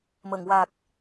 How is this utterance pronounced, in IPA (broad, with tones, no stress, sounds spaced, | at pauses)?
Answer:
m ə˨˩˨ ŋ w a˨˩ k̚